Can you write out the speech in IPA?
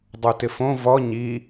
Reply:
dˤ u t ɪ f õ v ɔ ɲ i

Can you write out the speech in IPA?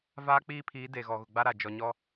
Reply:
v aː˦ k͡p iː˦ pʰ iː˨˦ d e˨ ɣ ɔ˨ ɣ ʊ˨ ɡ͡b a˦ ɾ a˨ d͡ʒ ɔ˨ ɲ ɔ˦

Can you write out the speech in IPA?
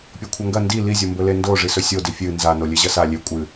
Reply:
pʲ o kʷʰ ɐ ŋ ɡ ɐ n d i l i zʲ o m b ɵ l e n d o ʐ i s ɵ sʲ o d i fʲ ɨ n z a n o lʲ e ʑ ɐ s a lʲ e kʷʼ ɨ

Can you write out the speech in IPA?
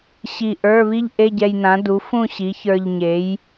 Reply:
ɕ i˧˩ ʔ ə˞˧˥˧ β i˥ ʎ ʔ e˧˥˧ ɟ ɛ˧ j n ã˩˥ d u˩˥ f ũ˥˨ ɕ i˩˥ ç ə˞˧ ʎ ɲ e˩˥ j

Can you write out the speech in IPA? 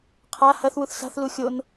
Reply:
qʰ a h ɐ θ w u θ s a̤ θ l u xʲ o n

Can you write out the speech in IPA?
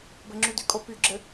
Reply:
b ɘ ŋ͡ǁ y d y kʼ o p y ɡ͡ǁ ɘ

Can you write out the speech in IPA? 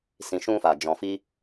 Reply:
s ĩ˨ ʃ ũ˧ f a˨ d͡ʒ ɔ̃˨ f i˧

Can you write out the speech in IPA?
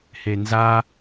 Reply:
h e n z a

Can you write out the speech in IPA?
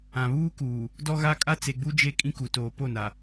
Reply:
ã˨ β uː˦ k uː˨ | d ɔ˦ ɣ a˦ kʼ a˦ t͡s e˨ ɡ͡b u˦ d͡ʒ e˦ kʼ ĩ˦ k u˨ t oː˨ p o˦˨ n a˨

